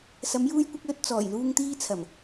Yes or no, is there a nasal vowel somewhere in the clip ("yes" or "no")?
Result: no